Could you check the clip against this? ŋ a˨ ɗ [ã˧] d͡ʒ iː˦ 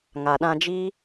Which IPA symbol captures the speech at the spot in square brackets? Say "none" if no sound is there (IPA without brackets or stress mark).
ã˧